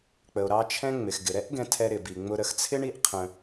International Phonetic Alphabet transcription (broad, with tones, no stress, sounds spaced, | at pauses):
k͡p ə˩ o̯ ɾ ɑ˧ t͡ʃʰ ɛ̃˧ ŋ͡m ɪ˩ x ɡ ɪ˩ ɾ ɛ˥ ʔ ɡ ɛ̃˧ tʰ ɛ˧ ɾ ɪ˩ b i˩ ŋ͡m ʊ˧ ɾ ə˧ x t͡sʰ ɪ˥ ɳ i˥ ʔ qʰ ə̃˧